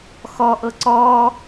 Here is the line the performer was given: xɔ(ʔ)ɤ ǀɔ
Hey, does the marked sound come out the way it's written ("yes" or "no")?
yes